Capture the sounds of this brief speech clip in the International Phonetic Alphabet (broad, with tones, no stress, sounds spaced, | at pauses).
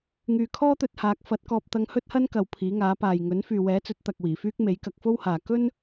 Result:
ŋ yː˨ kʰ ɔː˥ t̪ ɵ˧ t̚ h aː˨˥ k̚ f ɐ˨˥ t̚ k ɔː˧ p̚ t̪ ɐ˧ ŋ h ɵ˥ t̚ h ɐ˥ n k ɐ˨ w pʰ iː˨˥ ŋ aː˨˥ p aː˨ j ŋ ɵ˨˥ n f yː˨ w ɛː˨˥ t͡s ɵ˨˥ t̚ t̪ ɐ˨ k̚ w iː˨˩ f yː˥ k̚ m e˨˥ j k ɐ˧ k̚ f o˥ w h aː˨ k ɵ˥ n